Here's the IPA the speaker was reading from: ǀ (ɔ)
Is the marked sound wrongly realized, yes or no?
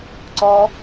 no